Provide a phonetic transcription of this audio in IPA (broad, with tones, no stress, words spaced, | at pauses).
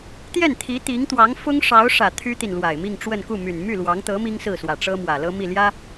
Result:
t̪jɛ˥˩nt̪ʰi˧˥ t̪i˧˥ŋt̪wɑ˧˥ŋ fʊ˥ŋʂɑ˧˥ʊ̯ʂä˨˩ t̪ʰy˥t̪i˨n lwa˨˩ɪ̯mi˥˧ŋʈ͡ʂwə˥˧n ku˥˩my˨˩n my˥˩ lwɑ˧˥ŋt̪ɤ˧˥ mi˥ŋsɹ̩˥˩swä˨˩ ʈ͡ʂɤ˥mwä˨˩ lɤ˥mi˥˩ljä˥